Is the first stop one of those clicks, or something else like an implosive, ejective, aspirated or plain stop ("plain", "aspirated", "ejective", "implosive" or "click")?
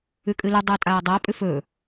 ejective